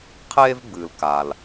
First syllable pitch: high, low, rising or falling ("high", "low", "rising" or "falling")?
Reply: high